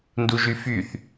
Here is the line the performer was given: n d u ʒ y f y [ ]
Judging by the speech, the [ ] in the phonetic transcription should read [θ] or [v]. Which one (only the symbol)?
θ